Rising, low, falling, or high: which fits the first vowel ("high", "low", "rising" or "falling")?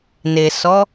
low